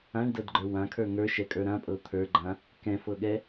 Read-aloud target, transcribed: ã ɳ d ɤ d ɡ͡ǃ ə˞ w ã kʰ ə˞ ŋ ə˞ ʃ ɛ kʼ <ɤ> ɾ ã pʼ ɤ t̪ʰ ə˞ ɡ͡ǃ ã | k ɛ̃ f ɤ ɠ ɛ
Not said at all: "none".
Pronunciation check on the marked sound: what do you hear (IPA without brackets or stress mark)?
ə˞